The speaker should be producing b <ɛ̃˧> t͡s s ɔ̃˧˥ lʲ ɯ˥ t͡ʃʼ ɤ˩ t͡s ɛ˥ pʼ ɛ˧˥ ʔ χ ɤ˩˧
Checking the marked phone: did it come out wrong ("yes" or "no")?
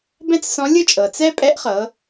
yes